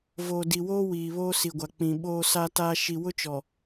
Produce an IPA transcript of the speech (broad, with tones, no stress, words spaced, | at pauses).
voː˨di˨woː˦ wiː˨βoː˦si˨ɡʷa˨ k͡pĩ˨ɓoː˦sa˦taː˦ ʃi˨ wʊ˦t͡ʃɔ˨